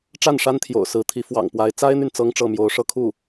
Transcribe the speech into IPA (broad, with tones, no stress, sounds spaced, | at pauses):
ʈ͡ʂ a˥˩ n ʂ a˥ n t̪ʰ j o̰˨˩ ʊ̯ s ɹ̩˧˥ t̪ʰ i˧˥ f w ɑ̰˨˩ ŋ p w a˧˥ ɪ̯ t͡s a˥ ɪ̯ n̪ y˨ n t͡s ɤ˥ ŋ ʈ͡ʂ ɤ˥˩ m j o˧˥ ʊ̯ ʂ ɤ˥ kʰ u˥˩